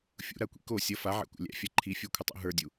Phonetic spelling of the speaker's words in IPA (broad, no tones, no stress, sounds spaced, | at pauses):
fʲ ṵ ɾ a kʷ ḭ k o sʲ ʌ f a ʕ æ̰ kʷ æ̰ lʲ æ̰ fʲ a ǃʰ i fʲ ə˞ kʷʰ ə tˤ ṵ ɦ ə˞ dʲ u